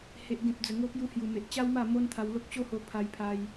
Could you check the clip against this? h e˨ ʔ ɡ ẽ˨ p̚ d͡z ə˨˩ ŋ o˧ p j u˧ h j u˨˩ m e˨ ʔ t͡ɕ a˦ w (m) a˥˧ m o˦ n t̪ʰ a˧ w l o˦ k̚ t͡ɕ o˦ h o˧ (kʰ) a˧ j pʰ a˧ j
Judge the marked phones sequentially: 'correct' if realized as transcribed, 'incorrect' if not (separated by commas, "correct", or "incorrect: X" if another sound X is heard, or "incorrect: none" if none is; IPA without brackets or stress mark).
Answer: correct, incorrect: pʰ